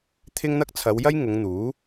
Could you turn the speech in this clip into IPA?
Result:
t̪ʰ ɪ˥ ŋ n̪ ɐ˥ k̚ t͡sʰ ɐ˨˧ w j ɐ˥ j ŋ ʊ˨˧ ŋ n̪ uː˨˥

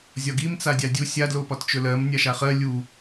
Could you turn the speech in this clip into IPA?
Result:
zʲ ɒ ɡ i m t͡s a dʲ a dʲ u sʲ a d l o p ɒ t t͡ʃ ɵ l ɜ m nʲ a ʃ a χ ɜ lʲ u

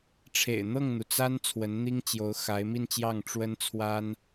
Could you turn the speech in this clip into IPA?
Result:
ʈ͡ʂʰ ḛ˨˩ ɪ̯ n̪ ɤ˥˩ ŋ n̪ u˩ t͡s a˥ n t͡sʰ w ə˧˥ n n̪ i˥ ŋ t͡ɕ j o˧˥ ʊ̯ x a˧˥ ɪ̯ m i˥˧ n t͡ɕ j ɑ˥˩ ŋ ʈ͡ʂ w ə˥ n t͡sʰ w a˥ n

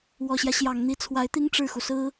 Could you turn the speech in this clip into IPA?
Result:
w ɔ˨˩ ɕ j ä˦ ɕ j ɑ˨˩ ŋ n̪ i˧˥ t͡sʰ w a˧˥ ɪ̯ t̪ i˥ ŋ ʈ͡ʂ ɻ̩˥˩ x u˩ s ɹ̩˥

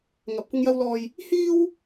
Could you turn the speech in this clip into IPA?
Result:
ŋ ɐ˨ p̚ kʷ ɪ˧ ŋ j ɐ˧ w l ɔː˨ j | h iː˥ w

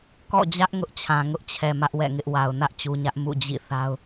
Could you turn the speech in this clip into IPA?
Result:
k ɔ̰˦˨ d͡ʑ ä˦ ʔ ŋ ʊ˦ ʔ t͡ɕʰ ã˨ ŋ ʊ˦ ʔ t͡ɕʰ ɛ˨ m ä˦ ʔ w ɛ̰˦˨ ŋ ɪ˦ ʔ w a˨ ʊ̯ n ä˦ ʔ t͡ɕ u˨ ɲ ä˦ ʔ m ṵ˦˨ d͡ʑ ḭ˦˨ θ a˦ ʊ̯

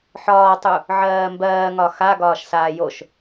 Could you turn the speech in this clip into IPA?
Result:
ħ ɒː tˤ u | ʕ ɜː m b ɜː ŋ ɒ x a ɡ ɒː ʃ s aː j o ʃ

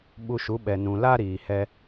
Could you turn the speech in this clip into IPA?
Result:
ɓ u˧ ʃ u˨˦ ɓ ɛ˨ n ũ˨ l a˦ ɾ iː˨ h ɛ˧

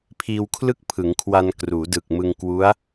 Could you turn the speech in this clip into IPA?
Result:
pʰ iː˧ w kʰ l ɯ˥˩ k̚ pʰ ɯ˩˦ ŋ kʰ w a˧ n k r uː˩˦ d ɯ˨˩ k̚ m ɯ˧ ŋ k w u˦˥ a̯

